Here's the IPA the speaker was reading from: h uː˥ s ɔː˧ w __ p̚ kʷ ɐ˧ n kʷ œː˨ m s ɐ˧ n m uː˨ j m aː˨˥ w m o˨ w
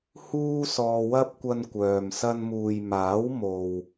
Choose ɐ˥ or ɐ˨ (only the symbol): ɐ˥